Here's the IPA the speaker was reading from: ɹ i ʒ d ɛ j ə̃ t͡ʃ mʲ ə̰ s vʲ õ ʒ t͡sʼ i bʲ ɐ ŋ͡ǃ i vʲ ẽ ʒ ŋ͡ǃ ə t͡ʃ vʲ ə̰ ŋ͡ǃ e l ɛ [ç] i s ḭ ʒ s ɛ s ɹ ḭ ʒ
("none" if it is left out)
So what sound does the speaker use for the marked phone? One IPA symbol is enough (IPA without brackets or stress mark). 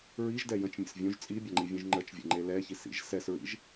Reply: ç